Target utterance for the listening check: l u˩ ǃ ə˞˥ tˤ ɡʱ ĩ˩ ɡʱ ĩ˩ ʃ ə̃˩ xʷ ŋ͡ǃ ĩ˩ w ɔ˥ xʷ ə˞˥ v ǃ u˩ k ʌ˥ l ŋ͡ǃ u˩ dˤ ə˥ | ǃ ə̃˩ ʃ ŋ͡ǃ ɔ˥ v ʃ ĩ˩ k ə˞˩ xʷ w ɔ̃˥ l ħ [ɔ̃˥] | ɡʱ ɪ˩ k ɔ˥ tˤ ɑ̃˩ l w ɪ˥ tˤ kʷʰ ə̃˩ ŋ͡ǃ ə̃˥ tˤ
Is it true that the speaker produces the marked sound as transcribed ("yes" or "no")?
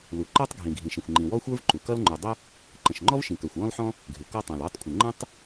yes